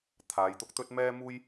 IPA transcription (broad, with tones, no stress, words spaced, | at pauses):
t̪ʰaː˨˧jt̪ʊ˧k̚ t̪ɵ˧t̚mɛː˧muː˧j